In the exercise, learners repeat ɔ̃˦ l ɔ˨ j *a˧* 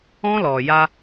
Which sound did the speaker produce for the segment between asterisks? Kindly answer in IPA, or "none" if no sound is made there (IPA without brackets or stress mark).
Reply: a˧